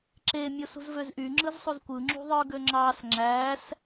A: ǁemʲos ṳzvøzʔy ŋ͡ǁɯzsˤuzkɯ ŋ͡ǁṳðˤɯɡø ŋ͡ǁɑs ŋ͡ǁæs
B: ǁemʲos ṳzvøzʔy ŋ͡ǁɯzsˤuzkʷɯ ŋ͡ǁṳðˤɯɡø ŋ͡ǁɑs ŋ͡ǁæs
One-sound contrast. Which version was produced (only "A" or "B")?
B